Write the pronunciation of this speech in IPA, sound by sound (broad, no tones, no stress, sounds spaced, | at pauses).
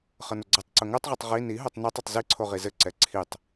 χ ʌ n ʊ ɡ͡ǀ ʌ tˤ ǀ ʊ ŋ œ tˤ ʁ ʌ tˤ ʁ i n i ɦ o tˤ n ɛ tˤ ʊ tˤ z i ǀʰ o ʁ i z ɘ ǀ ɛ ǀʰ i tˤ